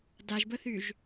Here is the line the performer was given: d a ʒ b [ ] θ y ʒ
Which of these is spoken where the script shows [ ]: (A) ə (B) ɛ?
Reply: A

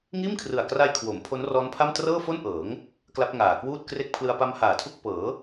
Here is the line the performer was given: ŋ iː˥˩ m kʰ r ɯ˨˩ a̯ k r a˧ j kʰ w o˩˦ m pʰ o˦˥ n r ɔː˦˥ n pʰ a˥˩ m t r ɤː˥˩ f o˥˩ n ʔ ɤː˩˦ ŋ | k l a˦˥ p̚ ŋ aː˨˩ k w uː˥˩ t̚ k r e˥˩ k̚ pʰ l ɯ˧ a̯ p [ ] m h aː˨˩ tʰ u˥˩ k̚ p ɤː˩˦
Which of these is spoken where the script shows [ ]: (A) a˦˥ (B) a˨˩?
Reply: A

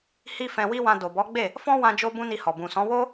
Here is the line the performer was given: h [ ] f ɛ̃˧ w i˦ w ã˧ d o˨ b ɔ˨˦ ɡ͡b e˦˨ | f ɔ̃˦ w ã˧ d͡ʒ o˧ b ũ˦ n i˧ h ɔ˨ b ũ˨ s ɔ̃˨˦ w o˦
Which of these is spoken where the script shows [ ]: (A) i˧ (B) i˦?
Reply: B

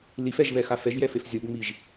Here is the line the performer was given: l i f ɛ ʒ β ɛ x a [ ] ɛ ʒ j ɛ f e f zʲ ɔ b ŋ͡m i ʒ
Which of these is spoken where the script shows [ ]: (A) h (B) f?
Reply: B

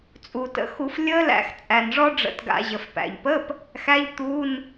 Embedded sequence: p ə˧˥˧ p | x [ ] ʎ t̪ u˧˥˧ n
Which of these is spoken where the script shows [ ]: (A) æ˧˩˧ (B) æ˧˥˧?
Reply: B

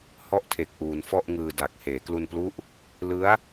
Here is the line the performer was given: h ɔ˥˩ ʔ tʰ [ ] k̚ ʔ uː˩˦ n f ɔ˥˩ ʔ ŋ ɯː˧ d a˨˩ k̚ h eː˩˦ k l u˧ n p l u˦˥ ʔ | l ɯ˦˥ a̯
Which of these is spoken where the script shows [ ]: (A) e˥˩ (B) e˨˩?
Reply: B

